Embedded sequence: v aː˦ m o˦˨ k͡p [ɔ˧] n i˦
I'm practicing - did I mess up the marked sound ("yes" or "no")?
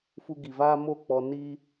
no